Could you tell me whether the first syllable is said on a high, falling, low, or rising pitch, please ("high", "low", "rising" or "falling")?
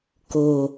low